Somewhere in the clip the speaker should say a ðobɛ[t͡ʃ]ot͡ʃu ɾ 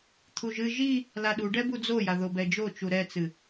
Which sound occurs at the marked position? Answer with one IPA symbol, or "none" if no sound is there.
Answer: d͡ʒ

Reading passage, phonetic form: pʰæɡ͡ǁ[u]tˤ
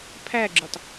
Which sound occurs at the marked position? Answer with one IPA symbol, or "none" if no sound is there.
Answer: u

